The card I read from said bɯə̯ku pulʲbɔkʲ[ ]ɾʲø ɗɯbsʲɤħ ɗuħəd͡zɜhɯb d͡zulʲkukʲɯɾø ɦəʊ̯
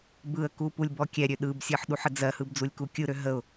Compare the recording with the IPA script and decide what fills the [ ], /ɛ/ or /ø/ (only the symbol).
ɛ